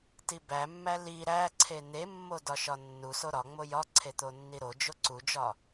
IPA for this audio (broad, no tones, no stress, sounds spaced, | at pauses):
t i b æ mː æ l i ɾ æ ǀʰ e n̪ e mː o d ɒ ʃ ɒ nː u s o ɾ ɒ ŋ͡m o j ɒ ǀʰ e t̪ o nː i ɾ o d͡ʒ o ǀ u d͡ʒ ɒ